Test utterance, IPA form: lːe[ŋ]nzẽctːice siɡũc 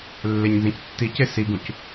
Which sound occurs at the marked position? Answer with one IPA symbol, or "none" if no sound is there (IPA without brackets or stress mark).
ɲ